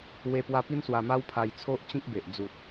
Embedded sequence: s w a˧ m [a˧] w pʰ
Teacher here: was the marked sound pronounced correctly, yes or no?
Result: no